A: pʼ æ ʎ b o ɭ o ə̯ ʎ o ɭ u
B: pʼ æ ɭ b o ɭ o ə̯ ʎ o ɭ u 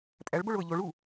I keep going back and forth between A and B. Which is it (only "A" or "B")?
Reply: B